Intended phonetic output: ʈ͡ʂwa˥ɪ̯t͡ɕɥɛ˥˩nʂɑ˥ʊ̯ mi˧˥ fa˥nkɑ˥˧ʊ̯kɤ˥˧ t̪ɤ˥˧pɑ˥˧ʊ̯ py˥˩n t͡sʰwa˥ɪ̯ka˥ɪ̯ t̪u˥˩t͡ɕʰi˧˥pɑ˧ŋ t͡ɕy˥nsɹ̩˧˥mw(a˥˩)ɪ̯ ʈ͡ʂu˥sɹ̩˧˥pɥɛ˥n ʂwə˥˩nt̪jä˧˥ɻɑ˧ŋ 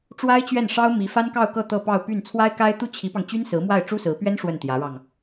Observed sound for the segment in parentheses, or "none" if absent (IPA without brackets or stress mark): a˥˩